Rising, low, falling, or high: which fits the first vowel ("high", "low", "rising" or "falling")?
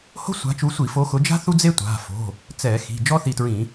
high